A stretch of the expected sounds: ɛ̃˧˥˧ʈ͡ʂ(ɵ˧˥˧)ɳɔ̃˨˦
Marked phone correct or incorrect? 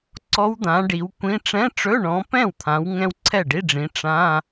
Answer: correct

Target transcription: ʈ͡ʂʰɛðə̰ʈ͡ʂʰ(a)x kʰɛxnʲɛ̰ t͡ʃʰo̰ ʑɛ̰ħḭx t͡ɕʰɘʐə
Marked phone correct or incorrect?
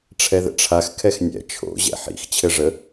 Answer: correct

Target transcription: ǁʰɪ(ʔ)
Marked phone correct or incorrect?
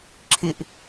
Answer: correct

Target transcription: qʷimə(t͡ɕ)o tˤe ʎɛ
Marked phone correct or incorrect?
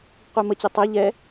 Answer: correct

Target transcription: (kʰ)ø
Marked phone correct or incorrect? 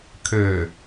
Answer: correct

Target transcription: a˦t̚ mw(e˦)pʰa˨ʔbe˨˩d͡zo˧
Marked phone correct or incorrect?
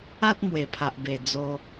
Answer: incorrect: e˨˩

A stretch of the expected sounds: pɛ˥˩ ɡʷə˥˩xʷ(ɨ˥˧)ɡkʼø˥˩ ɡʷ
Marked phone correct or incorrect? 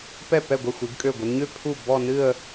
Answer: incorrect: ɨ˨˦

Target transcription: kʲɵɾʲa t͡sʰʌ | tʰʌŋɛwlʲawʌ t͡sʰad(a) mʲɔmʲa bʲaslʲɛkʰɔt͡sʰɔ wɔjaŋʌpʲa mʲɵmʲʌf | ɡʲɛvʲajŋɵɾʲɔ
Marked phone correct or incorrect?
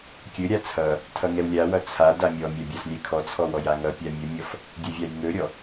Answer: correct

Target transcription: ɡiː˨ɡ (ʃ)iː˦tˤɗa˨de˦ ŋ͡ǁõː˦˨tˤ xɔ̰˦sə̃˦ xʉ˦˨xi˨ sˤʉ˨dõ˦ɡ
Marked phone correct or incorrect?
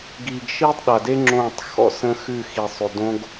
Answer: correct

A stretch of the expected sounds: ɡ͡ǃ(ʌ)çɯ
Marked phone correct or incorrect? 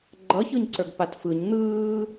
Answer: correct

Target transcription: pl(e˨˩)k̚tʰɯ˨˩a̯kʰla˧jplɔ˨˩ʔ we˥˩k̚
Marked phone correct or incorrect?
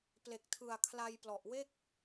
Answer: correct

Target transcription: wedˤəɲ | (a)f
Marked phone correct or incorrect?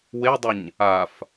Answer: correct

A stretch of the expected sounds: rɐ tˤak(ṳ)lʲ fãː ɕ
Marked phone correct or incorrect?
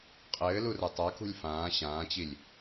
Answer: correct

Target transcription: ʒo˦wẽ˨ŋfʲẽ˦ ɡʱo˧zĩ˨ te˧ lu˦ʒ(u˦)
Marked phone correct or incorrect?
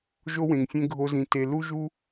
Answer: correct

